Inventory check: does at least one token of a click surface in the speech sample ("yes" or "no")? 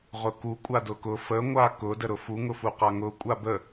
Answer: no